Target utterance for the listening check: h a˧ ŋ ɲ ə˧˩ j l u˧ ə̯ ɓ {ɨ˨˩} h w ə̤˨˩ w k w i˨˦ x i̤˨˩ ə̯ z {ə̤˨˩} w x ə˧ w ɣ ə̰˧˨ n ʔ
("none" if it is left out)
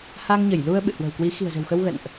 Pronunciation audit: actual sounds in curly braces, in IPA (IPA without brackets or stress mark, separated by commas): ɨ̰˧˨, ə̤˨˩